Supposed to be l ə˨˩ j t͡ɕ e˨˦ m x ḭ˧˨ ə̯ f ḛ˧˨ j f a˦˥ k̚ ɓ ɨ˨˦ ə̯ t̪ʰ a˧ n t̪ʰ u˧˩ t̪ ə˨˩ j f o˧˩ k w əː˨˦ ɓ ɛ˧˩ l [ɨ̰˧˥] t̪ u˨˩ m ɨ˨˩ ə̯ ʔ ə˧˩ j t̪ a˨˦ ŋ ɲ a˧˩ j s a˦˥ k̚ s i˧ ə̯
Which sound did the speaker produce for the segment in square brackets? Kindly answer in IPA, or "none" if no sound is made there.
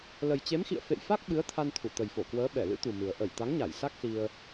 ɨ̰˧˥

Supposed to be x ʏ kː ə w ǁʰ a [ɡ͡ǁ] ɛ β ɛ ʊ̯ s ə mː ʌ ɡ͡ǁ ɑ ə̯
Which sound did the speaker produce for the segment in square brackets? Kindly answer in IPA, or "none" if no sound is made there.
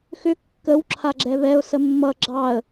ɡ͡ǁ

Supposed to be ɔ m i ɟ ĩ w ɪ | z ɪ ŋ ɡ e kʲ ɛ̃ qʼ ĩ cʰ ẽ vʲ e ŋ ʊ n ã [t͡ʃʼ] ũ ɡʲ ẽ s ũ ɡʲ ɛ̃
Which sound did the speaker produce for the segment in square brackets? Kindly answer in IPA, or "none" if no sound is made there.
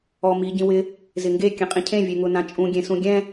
t͡ʃʼ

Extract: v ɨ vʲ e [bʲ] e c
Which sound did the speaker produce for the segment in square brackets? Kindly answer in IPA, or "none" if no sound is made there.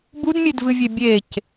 bʲ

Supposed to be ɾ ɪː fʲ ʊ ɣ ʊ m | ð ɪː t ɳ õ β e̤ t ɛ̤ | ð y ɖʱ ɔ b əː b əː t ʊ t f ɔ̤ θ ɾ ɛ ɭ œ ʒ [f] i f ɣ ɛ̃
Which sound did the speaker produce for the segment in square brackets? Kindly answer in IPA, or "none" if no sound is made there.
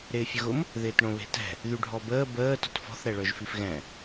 f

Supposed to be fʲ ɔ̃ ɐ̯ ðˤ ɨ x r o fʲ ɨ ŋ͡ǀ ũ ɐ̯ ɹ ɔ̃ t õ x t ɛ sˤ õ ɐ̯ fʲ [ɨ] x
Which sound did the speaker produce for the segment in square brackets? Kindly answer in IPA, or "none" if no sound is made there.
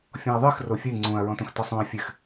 ɨ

